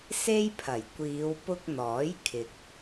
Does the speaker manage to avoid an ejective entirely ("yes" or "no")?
yes